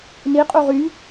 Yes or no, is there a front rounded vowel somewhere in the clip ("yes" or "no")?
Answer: yes